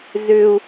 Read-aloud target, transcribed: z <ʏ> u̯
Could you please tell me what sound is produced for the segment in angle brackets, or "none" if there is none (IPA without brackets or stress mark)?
ʏ